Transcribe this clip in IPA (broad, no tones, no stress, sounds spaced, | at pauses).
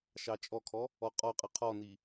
ʃ ɑ t͡ʃʼ ɔ kʰ ɔ | ɔ qʼ ɔ qʼ ɯ qʰ ɔ n i